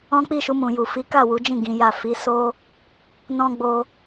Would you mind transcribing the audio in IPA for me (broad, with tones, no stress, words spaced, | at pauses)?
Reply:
ɔ̃˦ k͡pi˦˨ʃu˧mũ˨ju˨ fi˨˦ka˦˨wu˨˦d͡ʒĩ˦˨ ɡĩ˨˦ja˦˨ fi˨˦so˦ | nɔ̃˦ ɡ͡bo˧